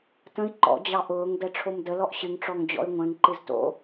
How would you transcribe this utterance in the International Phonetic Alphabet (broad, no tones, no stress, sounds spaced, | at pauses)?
t ə̃ i̯ ǃ ɔ̰ d͡ʑ ɑ ʔ ʊː ŋ d ɛ ʈ͡ʂʰ o m d ə l ɔ ʔ ɕ ɨ ŋ ʈ͡ʂ ɔ ŋ d͡ʑ ɔ̰ y̯ ŋʷ ɛ̃ ŋ ǃ ɨ z t o̰